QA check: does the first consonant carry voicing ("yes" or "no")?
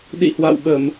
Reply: yes